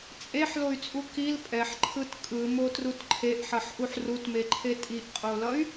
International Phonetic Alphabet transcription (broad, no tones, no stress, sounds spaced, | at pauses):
t͡sʼ e ħ l o y̯ t͡sʼ u k i l pʼ ɛ ħ ǃʰ ɯ t kʼ ɯ m o t r u t ǃʰ e ʔ ħ ʌ ħ ʔ u ħ r u t m e ǃʰ e tʼ i ʔ qʼ o l ʌ y̯